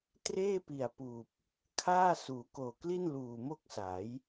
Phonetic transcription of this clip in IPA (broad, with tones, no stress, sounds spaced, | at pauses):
t r eː˥˩ p i˨˩ a̯ p uː˨˩ p̚ | kʰ aː˥˩ s uː˩˦ k oː˨˩ k l i˥˩ n l uː˨˩ m o˥˩ k̚ s a˩˦ j